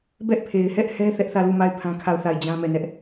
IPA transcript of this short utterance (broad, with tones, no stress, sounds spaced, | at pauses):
b ɛ˦ ʔ pʰ e˨ ɪ̯ h ɛ˦ ʔ h ɛ˦ θ ɛ˦ ʔ θ ä˦˨ l u˦˨ m a˦˨ ɪ̯ pʰ ã˦ kʰ a˦˨ ʊ̯ θ a˦˨ ɪ̯ d͡ʑ ã˦ m ɛ˦˨ n ɛ˦ ʔ